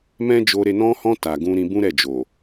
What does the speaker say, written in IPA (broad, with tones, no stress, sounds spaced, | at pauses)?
m ɛ̃˦ d͡ʒ o˧ ɾ e˧ n ɔ̃˧ h ɔ̃˧ t a˨ ɡ ũ˧ ɾ ĩ˧ b ũ˦ ɾ ɛ˦˨ d͡ʒ o˨